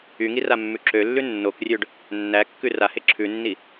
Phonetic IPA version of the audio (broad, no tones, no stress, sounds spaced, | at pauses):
y ŋ i r a mː ʉ ǁ ø lː ʉ nː o k rʲ ø ɖ | nː æ kː ʉ r a h e ǁʰ ʉ nː i